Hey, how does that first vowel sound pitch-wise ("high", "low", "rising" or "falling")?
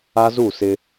high